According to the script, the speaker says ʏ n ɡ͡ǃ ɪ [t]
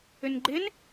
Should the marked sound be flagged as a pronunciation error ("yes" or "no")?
yes